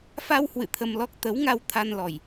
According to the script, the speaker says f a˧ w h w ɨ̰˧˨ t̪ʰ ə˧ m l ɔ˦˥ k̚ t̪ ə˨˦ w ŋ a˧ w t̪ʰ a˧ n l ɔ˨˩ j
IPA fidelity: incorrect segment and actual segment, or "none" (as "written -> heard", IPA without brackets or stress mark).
none